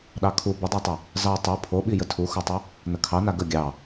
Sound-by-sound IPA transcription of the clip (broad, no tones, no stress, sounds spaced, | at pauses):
ɗ ɑ kʰ u b ə dˤ a tˤ ə | z ɑ tˤ u pʰ o ɓ i j ə tʰ u x o tˤ ə | n ə kʰ ɑ n a ɡ ə ɡʲ ɑ